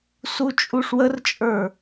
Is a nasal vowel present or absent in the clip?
absent